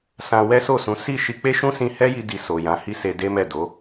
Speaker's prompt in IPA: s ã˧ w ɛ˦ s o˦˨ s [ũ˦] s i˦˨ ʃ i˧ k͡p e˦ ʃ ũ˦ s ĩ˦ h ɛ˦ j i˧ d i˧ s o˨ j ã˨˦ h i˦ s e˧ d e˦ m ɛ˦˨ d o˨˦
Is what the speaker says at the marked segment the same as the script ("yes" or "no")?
no